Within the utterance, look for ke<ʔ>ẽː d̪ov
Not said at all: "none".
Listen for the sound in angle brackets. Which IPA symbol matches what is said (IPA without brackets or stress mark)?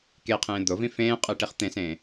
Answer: qʰ